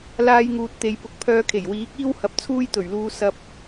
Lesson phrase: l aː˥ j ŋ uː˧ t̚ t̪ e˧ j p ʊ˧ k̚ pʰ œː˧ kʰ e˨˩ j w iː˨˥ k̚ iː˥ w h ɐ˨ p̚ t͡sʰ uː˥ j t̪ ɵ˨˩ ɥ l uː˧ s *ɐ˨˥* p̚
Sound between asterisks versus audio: incorrect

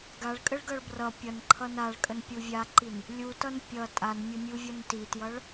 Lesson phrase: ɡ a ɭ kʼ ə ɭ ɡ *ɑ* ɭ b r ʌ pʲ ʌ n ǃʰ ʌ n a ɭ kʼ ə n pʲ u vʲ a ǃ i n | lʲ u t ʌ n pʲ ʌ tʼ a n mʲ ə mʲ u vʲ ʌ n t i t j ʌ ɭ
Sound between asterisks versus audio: incorrect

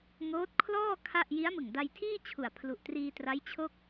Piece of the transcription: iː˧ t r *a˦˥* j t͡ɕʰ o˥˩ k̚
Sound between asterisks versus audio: correct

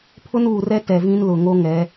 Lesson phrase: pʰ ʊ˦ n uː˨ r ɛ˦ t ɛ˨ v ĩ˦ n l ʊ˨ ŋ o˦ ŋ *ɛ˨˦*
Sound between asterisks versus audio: correct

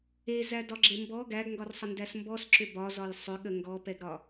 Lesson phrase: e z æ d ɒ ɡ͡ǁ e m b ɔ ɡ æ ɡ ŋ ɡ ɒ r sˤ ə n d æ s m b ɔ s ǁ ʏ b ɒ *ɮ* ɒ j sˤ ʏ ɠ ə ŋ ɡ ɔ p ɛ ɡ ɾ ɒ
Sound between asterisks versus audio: incorrect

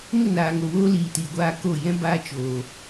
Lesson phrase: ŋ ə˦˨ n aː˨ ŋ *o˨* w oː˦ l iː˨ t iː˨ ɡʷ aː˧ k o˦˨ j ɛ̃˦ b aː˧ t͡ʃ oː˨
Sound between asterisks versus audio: correct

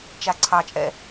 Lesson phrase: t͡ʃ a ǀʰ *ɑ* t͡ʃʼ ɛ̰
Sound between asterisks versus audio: correct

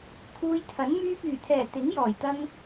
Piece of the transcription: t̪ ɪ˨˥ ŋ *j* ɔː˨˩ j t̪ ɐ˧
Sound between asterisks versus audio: correct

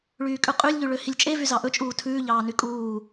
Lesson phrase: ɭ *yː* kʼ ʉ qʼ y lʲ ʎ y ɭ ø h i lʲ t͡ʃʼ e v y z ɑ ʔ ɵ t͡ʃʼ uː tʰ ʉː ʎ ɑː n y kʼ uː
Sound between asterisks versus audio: correct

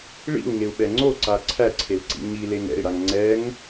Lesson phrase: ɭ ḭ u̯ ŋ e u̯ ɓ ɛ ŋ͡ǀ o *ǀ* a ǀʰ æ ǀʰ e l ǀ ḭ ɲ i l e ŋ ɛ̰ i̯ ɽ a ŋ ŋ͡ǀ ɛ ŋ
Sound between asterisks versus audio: correct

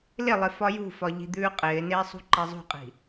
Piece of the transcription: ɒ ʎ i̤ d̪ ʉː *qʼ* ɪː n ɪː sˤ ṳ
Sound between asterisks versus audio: correct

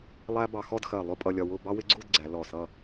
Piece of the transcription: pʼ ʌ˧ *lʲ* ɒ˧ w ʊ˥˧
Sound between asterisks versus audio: correct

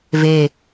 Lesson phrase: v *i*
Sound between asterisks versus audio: incorrect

